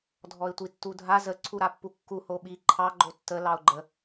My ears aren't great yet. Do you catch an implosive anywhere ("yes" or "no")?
yes